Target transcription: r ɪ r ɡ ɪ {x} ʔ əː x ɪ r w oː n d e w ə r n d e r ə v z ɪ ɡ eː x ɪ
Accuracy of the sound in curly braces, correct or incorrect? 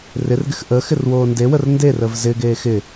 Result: correct